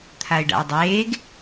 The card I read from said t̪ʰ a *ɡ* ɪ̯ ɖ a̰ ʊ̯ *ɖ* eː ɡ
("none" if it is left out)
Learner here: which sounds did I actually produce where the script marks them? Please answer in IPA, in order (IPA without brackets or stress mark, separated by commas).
none, dˤ